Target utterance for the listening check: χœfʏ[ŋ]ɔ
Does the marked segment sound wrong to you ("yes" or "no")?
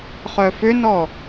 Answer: yes